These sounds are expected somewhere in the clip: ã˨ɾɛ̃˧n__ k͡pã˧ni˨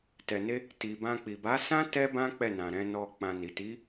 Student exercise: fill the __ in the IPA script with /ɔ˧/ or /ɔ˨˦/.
ɔ˧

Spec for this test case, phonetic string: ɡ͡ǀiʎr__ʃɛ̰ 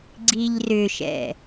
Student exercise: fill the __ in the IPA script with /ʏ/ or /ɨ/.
ʏ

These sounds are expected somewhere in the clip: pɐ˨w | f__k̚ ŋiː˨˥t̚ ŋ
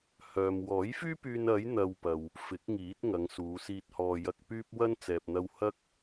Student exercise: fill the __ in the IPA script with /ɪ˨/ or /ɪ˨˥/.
ɪ˨˥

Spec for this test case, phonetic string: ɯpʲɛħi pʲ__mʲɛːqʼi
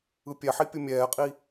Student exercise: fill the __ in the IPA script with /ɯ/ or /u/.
ɯ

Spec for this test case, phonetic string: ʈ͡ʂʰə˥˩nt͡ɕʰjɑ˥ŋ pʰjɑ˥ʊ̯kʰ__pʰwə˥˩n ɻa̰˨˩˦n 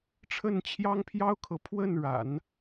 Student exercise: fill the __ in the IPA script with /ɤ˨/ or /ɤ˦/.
ɤ˨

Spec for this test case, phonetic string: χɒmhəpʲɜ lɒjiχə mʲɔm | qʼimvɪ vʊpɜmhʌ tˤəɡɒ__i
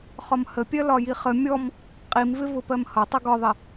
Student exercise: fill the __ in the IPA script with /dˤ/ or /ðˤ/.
ðˤ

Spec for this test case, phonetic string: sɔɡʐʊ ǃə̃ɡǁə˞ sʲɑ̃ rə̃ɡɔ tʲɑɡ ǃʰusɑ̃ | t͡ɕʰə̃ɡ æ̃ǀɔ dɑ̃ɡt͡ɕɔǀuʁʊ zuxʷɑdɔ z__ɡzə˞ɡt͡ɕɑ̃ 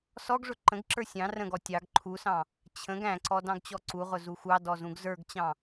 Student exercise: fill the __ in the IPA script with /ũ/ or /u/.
ũ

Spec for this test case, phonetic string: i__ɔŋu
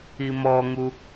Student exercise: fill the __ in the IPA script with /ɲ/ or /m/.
m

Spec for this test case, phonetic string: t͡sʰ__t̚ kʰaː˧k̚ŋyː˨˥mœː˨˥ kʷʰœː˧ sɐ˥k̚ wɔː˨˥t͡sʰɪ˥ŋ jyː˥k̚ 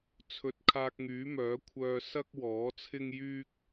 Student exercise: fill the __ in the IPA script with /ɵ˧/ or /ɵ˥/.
ɵ˧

